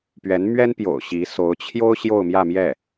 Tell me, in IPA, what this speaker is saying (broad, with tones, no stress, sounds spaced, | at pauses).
p ɥ ɛ˧˥ n m ɥ ɛ˥ n p j o̰˨˩ ʊ̯ ɕ i˧˥ s o˧˥ ʊ̯ t͡ɕʰ j o˥ ʊ̯ ɕ j o˥˧ ʊ̯ m j ä˥˧ m j ɛ˥˩